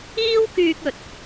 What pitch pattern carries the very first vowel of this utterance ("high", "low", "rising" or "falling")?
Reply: high